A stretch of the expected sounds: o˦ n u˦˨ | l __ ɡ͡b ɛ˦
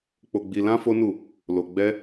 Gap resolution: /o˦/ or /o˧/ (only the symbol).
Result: o˧